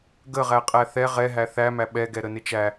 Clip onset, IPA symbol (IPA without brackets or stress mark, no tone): ɡ